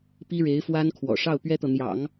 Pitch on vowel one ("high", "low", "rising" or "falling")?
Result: high